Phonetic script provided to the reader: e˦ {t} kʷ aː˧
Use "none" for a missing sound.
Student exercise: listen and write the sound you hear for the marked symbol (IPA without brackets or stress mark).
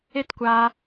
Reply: t